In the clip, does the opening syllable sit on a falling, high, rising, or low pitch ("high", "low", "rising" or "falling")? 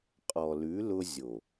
low